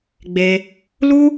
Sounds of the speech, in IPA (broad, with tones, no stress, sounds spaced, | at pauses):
ɡ͡b e˧ | l u˦